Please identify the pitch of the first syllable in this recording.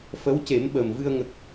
rising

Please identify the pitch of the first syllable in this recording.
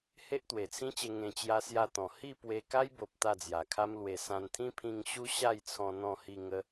high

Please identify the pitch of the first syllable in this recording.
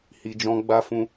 low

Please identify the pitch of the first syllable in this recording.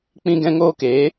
high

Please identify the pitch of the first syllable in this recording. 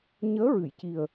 rising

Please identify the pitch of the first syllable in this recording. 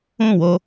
falling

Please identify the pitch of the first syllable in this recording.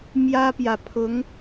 high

